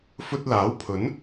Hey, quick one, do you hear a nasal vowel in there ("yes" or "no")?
no